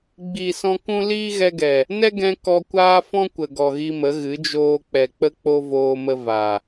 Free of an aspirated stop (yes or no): yes